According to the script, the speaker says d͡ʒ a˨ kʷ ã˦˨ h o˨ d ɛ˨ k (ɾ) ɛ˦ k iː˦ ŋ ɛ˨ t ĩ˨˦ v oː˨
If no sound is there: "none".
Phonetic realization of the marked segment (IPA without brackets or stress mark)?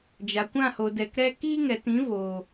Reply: ɾ